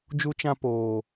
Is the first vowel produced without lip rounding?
no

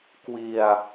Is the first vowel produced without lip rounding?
yes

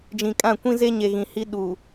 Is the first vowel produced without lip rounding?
yes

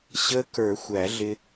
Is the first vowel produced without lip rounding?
yes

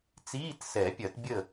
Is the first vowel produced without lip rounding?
yes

